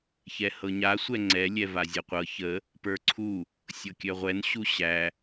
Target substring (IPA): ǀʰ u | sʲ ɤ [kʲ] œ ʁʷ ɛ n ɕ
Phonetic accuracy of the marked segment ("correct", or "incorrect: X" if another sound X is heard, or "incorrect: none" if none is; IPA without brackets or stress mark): correct